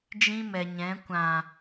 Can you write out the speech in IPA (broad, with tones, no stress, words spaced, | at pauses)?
d͡ʒĩ˦mɛ˨ɲɛ̃˨˦ kʷã˨